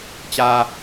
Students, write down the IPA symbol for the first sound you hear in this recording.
t͡ɕ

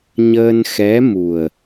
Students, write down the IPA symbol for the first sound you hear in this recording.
ɲ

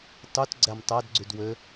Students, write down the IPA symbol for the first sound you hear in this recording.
tˤ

